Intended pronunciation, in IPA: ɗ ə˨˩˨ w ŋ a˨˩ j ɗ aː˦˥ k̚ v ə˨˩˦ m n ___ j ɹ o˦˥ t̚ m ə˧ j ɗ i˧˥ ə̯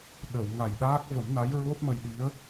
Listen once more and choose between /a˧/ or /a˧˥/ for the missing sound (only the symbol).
a˧˥